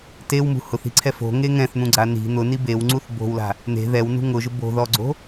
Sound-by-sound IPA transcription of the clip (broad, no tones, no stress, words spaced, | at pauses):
tewmṳ hʊθi̤ǀʰɛ fo̤ŋe ŋɛ̃θn̪ũɡ͡ǀa ni̤ n̪ʊni bewŋ͡ǀuθ bo̤wla̤ | n̪e̤ ðɛwnṳ ŋʊʒʊ bo̤ðɔɡ͡ǀo̤